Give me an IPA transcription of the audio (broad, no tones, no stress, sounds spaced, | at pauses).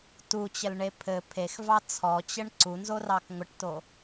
t u t͡ɕ ə l ɳ e pʰ ɘ pʰ e x v ɑ t͡sʰ ɔ t͡ɕ ə ɳ ǀ u n z o r ɑ k ŋʷ ə ʈ t o